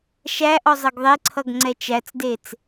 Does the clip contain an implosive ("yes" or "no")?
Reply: no